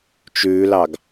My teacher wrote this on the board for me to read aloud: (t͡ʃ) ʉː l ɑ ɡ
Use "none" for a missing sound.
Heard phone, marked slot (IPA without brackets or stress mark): t͡ʃ